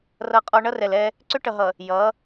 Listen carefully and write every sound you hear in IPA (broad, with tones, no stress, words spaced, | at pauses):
rʌ˦qʼɔ˦ ɳʌ˦rɛ˨lɛ˦ | ǀʏ˦ʈʌ˨ɦʌ˨ | jʌ˨˦